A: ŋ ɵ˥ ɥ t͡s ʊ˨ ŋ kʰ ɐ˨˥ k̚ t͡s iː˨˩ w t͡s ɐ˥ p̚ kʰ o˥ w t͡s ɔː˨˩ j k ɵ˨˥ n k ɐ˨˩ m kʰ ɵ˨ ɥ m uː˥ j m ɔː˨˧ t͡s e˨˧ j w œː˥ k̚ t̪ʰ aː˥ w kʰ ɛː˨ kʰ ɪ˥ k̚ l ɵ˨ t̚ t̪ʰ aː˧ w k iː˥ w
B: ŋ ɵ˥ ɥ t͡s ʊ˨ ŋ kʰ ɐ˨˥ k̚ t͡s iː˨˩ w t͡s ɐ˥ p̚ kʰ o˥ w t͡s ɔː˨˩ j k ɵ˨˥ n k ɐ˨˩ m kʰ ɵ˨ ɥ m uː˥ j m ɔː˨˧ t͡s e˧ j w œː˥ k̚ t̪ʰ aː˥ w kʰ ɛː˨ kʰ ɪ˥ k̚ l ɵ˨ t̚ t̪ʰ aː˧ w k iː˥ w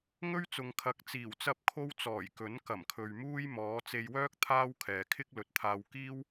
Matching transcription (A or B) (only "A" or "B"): B